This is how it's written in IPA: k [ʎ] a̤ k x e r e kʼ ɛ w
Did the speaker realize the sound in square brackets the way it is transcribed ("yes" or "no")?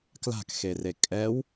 no